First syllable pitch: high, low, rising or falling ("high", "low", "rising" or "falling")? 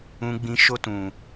low